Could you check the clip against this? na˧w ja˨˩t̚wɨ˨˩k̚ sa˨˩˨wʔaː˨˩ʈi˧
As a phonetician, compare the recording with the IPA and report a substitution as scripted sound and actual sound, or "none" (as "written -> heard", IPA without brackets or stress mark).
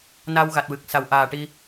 j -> ɣ